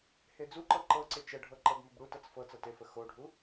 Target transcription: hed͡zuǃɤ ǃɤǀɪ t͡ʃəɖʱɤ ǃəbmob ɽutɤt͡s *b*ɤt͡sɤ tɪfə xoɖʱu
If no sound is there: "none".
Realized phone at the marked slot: f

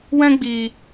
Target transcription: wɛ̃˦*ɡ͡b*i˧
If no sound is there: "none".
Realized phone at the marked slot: ɡ͡b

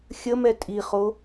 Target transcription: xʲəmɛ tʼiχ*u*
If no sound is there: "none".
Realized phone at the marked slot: o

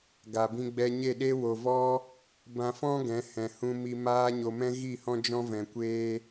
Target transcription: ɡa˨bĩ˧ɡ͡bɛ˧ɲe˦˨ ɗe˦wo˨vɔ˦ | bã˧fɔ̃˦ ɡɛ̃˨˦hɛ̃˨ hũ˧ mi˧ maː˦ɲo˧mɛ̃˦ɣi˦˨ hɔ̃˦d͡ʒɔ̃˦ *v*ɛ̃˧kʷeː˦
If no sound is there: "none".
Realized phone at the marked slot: v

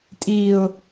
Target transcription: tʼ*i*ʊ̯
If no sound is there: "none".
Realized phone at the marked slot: i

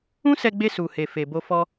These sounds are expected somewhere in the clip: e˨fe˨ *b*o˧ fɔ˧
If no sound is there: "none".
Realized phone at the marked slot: b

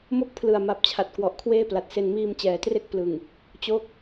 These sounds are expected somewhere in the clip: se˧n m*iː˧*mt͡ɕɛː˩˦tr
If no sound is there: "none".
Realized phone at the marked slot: iː˧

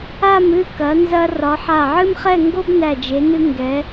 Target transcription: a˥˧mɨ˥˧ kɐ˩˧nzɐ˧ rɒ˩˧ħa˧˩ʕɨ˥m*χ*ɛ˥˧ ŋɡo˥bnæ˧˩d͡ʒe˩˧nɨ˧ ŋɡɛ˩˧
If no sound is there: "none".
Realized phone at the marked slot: χ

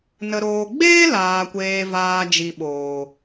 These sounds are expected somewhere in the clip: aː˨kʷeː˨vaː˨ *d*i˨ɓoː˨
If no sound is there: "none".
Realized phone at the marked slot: d͡ʒ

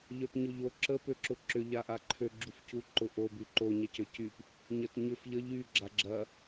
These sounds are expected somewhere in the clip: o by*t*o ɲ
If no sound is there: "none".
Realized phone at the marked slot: ǃ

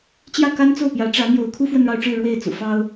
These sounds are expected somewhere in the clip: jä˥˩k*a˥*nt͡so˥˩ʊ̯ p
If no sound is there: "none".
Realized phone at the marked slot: a˥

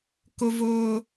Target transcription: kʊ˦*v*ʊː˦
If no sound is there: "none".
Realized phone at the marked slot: v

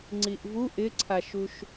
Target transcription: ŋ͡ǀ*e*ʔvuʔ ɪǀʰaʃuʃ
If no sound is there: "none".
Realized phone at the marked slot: i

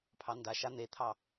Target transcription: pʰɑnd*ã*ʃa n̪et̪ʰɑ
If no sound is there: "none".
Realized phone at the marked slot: a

